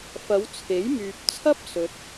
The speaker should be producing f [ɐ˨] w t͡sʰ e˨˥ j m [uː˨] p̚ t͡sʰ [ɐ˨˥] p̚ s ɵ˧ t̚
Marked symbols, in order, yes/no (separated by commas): no, no, no